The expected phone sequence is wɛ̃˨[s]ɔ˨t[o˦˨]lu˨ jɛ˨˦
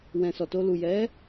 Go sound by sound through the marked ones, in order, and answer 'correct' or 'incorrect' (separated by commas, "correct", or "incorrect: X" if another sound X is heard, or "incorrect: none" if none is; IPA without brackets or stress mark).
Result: correct, incorrect: o˧